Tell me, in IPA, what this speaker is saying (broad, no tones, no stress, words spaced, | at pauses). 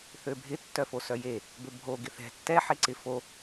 θøbʱɪ tːœfosœje | bøbʱo ɡɪθɛ̤ tːɛ ħeǀɪ fo